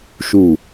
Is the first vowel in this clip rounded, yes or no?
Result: yes